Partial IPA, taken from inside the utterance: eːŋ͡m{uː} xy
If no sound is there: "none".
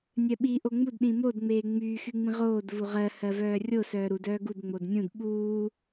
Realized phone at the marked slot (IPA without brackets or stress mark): yː